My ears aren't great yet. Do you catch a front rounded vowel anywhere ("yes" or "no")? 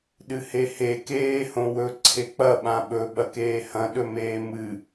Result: no